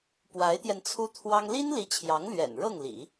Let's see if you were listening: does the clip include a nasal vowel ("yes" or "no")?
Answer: no